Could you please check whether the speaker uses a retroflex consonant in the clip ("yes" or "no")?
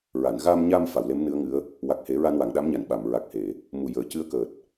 no